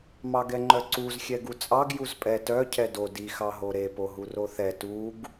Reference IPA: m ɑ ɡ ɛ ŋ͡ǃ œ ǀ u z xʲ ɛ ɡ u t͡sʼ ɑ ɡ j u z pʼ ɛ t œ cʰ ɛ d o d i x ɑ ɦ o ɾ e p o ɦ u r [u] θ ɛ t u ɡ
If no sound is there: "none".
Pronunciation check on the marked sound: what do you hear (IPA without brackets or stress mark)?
o